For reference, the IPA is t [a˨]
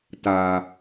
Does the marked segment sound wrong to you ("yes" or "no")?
no